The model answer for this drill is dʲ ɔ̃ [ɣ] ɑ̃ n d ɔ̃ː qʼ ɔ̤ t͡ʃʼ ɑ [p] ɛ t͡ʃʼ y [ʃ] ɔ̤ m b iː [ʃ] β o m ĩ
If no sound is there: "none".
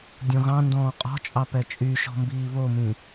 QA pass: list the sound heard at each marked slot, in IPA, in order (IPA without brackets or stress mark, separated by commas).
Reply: ɣ, p, ʃ, none